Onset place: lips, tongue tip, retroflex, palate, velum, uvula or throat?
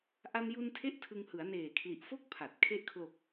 throat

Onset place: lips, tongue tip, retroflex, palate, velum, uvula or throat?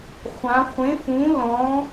uvula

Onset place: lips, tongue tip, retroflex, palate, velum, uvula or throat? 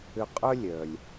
uvula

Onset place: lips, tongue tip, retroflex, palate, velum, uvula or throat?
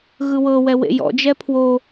velum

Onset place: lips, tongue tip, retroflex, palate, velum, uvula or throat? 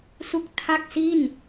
tongue tip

